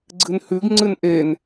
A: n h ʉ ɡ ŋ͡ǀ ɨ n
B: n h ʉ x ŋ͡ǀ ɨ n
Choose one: A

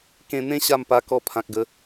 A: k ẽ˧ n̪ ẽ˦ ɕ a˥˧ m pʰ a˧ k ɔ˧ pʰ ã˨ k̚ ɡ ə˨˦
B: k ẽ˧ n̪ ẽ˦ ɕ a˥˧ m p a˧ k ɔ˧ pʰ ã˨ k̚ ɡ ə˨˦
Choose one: B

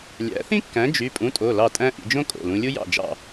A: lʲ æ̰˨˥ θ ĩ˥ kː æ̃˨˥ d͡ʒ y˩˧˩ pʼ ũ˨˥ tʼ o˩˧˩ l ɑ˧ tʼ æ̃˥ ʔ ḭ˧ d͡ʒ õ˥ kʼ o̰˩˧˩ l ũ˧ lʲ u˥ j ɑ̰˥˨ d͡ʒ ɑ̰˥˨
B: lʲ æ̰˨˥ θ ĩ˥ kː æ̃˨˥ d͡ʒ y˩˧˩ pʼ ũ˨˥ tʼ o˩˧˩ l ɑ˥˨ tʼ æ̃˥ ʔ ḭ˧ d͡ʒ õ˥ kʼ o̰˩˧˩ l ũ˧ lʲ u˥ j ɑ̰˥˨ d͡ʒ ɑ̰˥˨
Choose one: B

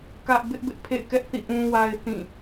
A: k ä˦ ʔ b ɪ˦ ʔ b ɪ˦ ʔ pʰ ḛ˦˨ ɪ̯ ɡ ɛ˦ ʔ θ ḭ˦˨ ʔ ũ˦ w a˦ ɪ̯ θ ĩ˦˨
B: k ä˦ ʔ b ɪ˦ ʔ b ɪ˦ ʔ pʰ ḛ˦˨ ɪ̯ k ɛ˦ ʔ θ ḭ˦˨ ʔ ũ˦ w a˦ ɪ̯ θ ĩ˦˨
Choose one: B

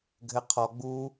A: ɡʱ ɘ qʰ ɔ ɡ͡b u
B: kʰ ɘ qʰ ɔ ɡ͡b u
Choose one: A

